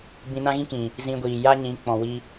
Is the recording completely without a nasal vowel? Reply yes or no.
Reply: no